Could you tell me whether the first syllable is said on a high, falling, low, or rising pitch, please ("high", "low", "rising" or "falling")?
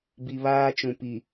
low